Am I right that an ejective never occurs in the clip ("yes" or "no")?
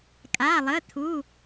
no